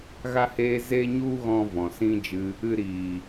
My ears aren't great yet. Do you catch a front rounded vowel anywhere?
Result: no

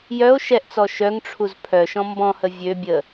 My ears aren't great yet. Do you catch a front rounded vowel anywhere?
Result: yes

